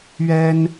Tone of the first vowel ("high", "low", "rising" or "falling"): high